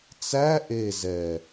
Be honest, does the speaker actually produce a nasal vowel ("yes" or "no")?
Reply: no